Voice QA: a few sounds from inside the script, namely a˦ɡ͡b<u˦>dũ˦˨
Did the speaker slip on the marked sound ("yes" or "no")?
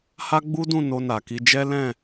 no